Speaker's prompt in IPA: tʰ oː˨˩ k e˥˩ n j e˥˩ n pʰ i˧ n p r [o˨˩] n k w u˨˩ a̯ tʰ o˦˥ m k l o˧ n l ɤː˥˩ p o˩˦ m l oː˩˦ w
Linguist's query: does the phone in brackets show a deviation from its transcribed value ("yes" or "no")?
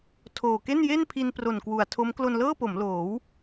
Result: no